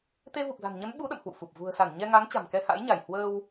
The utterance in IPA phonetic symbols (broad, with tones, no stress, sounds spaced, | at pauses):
t̪ e˧ v u˨˩ k̚ z a̤˨˩ n ɲ ə˨˦ n ɓ u˨˦ ɗ ə̰˧˨ m h w ṵ˧˨ f u˨˩ p̚ v ṳ˨˩ ə̯ s a˧˩ n ɲ ɛ˧ ŋ a˨˦ ŋ t͡ɕ a̤˨˩ m k ɛ˧ h a̰˧˥ j ɲ a˧˩ j h w əː˧ w